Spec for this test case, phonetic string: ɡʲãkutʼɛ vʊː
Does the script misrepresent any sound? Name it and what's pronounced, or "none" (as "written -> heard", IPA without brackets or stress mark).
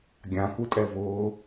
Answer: none